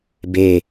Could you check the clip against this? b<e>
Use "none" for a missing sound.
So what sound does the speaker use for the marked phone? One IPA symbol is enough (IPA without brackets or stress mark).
e